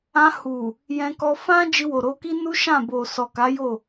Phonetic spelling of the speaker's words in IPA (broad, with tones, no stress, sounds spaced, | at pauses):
ã˧ h u˨ | j ɛ̃˧ k ɔ˧ f ã˦ d͡ʒ i˧ w o˨ ɾ o˧ k i˦ n u˦ ʃ ã˦˨ b o˨ s ɔ˨ k a˨˦ j o˦˨